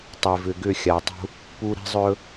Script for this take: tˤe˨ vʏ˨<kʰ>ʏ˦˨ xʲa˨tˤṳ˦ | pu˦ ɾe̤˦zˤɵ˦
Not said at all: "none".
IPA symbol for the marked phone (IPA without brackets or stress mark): ɡ